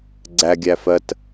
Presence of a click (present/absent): present